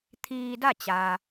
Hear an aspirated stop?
yes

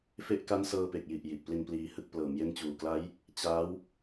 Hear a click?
no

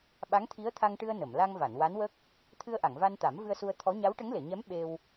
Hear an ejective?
no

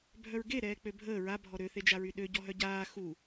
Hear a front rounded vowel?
yes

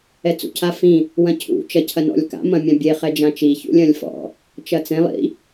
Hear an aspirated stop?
yes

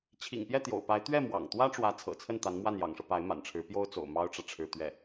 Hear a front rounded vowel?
no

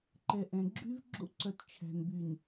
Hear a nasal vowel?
yes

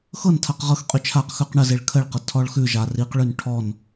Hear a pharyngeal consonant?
no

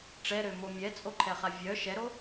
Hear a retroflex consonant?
yes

